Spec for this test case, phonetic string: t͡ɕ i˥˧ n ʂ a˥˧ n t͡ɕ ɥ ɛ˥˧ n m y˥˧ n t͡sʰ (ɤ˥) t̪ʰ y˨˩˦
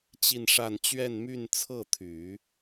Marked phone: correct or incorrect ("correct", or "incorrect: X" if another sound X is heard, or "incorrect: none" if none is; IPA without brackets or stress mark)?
incorrect: ɤ˥˩